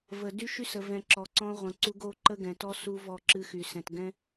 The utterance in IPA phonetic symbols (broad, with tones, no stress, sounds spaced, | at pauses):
v ə˨ d y˦ ʃ y˦ s ə˨ v ɛ̃˨ ǁ ɔ˨ ǀ ɔ̃˦ ʁʷ ə̃˨ ǀ u˦ ɡ o˦ ǃ ə˦ ɡ ɛ̃˨ t ɔ˦ s u˦ v ɔ˦˨ ǁ ɨ˦ x y˨ s ɛ̃˨ t ɡ ɛ̃˦